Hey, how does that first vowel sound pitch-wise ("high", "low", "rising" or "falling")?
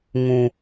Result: high